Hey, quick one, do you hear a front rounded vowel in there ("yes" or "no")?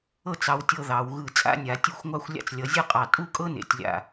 no